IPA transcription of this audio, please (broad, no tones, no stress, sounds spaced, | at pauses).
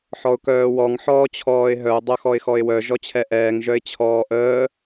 ħ ɔ ʊ̯ k œː w ɔ ŋ ħ ɔː t͡ɕʰ ɔː ɪ̯ ɦ œ ʊ̯ dˤ œ x ɔ ɪ̯ x ɔ ɪ̯ w œ ʒ ɔ t͡ɕʰ ɛ ʔ ɛː ŋ ʒ œ ɪ̯ t͡ɕʰ ɔː ʔ əː